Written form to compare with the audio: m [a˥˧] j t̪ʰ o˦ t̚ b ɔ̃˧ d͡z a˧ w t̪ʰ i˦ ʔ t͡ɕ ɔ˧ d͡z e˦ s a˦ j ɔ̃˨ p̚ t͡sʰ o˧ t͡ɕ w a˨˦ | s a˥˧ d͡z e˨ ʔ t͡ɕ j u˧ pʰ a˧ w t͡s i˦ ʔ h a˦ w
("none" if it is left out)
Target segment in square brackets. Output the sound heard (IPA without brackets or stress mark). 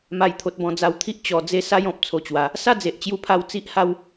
a˥˧